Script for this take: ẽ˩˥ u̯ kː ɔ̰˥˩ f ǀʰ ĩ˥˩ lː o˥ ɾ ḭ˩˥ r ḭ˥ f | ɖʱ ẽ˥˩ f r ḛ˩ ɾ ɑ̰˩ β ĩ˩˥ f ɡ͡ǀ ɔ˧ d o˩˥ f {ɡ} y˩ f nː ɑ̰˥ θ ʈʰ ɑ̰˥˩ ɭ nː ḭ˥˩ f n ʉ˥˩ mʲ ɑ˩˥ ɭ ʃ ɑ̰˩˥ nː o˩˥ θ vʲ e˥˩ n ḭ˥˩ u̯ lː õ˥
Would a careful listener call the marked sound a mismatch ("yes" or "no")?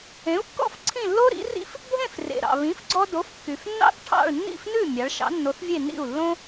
yes